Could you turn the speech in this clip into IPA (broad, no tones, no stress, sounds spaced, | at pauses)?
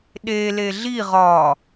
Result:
ɗ e l e ɮ i ʁ ɒ